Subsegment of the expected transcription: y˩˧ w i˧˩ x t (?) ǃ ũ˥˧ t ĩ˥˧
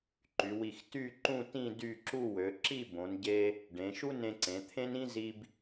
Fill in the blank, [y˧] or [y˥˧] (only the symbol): y˥˧